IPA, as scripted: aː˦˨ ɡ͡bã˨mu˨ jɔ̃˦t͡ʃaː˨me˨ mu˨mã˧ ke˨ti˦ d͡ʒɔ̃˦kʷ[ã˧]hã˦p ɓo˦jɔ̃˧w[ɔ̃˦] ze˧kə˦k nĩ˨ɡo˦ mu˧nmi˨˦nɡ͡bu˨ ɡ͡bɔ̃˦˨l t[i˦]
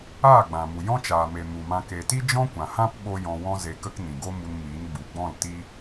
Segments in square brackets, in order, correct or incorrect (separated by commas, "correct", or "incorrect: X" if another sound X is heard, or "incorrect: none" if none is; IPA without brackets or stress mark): incorrect: ã˨, correct, correct